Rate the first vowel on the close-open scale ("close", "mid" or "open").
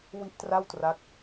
close